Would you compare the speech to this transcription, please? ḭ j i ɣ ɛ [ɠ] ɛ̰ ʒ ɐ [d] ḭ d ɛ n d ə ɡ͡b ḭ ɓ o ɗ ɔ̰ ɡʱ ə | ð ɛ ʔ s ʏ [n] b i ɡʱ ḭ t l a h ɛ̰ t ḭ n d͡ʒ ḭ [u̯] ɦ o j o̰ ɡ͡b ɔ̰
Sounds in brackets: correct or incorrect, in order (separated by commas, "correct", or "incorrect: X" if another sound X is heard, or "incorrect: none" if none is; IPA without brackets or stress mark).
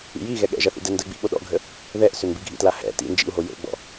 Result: correct, incorrect: θ, correct, correct